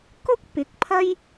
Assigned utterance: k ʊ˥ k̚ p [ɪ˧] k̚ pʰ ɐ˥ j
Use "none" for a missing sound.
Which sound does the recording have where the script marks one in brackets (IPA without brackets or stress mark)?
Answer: ɪ˨˥